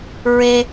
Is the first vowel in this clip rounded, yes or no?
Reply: no